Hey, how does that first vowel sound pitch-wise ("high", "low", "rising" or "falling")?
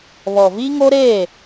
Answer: low